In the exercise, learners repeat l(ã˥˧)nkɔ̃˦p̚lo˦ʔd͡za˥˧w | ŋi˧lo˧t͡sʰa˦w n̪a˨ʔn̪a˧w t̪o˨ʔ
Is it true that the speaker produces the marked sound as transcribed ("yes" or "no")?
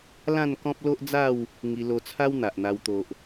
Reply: yes